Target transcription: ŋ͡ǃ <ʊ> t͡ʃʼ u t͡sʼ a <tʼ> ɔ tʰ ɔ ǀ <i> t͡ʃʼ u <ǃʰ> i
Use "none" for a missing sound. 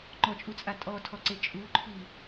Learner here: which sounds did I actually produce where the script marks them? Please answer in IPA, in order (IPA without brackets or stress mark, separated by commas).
ɔ, tʼ, e, ǃʰ